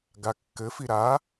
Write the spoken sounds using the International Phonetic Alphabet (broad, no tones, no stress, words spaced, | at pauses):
ɡakːɘfi ɾa